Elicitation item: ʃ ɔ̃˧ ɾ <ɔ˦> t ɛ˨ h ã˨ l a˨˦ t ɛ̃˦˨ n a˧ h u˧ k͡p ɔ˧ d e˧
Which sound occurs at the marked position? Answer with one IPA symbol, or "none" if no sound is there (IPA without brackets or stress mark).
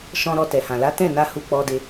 ɔ˧